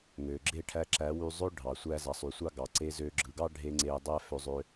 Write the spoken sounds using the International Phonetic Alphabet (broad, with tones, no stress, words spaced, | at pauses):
ŋø˨ɡ͡ǁe˦˨ʈʰæ˧ ǁæ˨˦wy˧ zˤø˦ ɖʱɑ˨ sʷæ˧zɑ˨sˤy˨sʷɑ˦ ɡɑ˨ǀe˧zø˧ ɡ͡ǁɯ˨ɡɑ˦ɖʱe˧ ŋ͡ǀe˧dˤæ˦ fø˧zˤø˧